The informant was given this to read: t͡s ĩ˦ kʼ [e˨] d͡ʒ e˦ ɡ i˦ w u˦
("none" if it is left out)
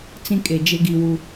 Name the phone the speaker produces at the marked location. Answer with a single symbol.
e˨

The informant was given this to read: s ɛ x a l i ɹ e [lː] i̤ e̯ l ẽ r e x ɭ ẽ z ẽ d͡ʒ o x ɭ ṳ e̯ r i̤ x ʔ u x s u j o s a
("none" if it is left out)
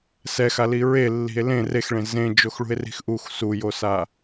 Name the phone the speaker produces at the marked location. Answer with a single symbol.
lː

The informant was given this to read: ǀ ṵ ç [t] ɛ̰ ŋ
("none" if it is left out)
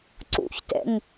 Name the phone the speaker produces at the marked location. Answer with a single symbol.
t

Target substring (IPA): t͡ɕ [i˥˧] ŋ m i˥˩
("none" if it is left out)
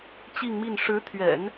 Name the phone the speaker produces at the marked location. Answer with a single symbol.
i˥˧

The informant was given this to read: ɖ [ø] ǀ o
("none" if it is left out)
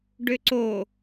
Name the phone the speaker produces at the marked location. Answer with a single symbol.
ø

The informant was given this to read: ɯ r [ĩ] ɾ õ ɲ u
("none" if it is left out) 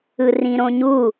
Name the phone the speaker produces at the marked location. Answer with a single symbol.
ĩ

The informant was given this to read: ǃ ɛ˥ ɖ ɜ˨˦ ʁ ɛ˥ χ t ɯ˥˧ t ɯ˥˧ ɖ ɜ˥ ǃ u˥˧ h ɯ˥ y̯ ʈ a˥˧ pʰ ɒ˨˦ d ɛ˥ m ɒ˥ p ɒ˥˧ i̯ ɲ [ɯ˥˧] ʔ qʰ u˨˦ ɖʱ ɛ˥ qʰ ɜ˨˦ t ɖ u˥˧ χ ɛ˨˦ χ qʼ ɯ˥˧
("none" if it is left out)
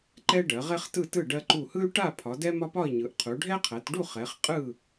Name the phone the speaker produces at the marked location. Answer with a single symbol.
ɯ˨˦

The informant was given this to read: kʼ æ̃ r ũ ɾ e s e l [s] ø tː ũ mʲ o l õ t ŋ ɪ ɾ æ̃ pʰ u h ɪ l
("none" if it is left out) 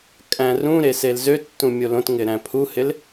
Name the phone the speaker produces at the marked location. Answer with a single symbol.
z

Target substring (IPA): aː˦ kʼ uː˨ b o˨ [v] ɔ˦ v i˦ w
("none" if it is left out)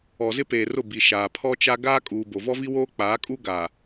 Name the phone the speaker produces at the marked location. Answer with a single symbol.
v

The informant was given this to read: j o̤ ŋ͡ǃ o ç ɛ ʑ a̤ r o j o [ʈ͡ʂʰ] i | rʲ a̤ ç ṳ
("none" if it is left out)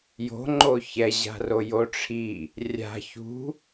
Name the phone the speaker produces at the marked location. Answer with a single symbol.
ʈ͡ʂʰ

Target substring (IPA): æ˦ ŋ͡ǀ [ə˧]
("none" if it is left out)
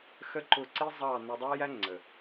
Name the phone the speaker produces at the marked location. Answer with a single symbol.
ə˨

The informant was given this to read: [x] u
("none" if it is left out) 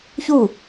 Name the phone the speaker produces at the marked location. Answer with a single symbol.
ç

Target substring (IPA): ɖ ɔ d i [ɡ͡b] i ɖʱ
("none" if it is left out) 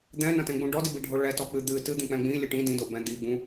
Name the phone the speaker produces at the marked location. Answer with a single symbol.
b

